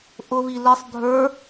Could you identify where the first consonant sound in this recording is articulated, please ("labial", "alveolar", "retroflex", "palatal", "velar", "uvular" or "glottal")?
glottal